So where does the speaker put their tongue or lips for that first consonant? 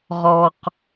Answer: uvula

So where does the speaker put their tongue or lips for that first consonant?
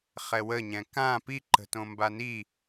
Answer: uvula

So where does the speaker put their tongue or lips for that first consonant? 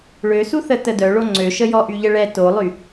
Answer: retroflex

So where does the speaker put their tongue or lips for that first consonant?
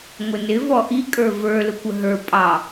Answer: velum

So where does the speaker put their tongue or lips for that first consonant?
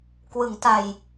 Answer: velum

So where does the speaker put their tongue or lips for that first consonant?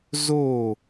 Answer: tongue tip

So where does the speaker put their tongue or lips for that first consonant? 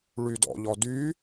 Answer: retroflex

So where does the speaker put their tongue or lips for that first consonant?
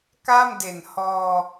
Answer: velum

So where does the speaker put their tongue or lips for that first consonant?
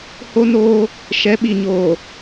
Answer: throat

